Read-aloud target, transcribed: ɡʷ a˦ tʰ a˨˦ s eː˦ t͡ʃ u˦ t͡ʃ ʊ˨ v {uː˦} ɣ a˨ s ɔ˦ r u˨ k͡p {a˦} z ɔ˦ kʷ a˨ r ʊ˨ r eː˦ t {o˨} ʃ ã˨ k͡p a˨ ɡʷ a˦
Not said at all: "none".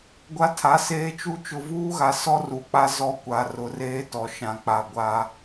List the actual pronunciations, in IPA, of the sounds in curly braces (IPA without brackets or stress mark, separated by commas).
uː˦, a˦, ɔ˨